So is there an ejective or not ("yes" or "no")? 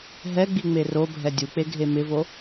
no